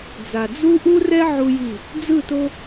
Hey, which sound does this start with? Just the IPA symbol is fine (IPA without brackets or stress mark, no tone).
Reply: d͡z